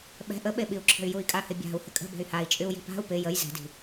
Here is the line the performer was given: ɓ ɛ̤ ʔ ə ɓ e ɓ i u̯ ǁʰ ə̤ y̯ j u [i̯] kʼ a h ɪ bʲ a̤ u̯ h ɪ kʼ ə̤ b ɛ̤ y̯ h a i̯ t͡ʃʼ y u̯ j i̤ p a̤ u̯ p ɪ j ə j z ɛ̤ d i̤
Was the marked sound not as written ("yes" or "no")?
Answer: no